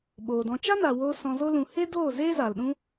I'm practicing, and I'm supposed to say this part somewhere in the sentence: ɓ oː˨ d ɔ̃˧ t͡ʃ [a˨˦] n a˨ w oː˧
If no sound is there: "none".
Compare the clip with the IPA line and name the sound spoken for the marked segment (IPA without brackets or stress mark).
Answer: a˦